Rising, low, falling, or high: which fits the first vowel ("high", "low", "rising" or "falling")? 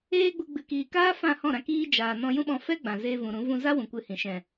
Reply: high